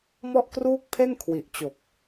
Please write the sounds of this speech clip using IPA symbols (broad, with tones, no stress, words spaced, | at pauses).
mɔ˥˩ʔkruː˥˩k̚pʰe˥˩n kʰwi˨˩ʔt͡ɕo˨˩k̚